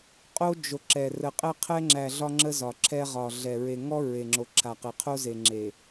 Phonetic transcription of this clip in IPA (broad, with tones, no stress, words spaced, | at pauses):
qʼo˦d͡ʒo˨ǁɛ˨ rə˨qʼɛ˦qʰɛ˦ŋ͡ǁæ˨ ɮɒ˦ŋ͡ǁə˦zɒ˨ǁʰɛ˦ ʁɒ˨ɮɛ˨ ɹe˨ŋɔ˦ ɹe˨ŋ͡ǁo˨ǁʰa˨qe˨ qʰo˦ze˨ ŋ͡ǁe˨